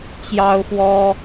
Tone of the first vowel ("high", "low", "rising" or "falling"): high